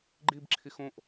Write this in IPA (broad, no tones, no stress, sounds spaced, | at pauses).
ɡ͡ǃ i b ǁʰ i x õ ʔ